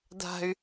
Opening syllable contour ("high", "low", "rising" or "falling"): low